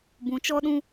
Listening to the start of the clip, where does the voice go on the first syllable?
rising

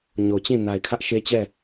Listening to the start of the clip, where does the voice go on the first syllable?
low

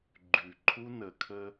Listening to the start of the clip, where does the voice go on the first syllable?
low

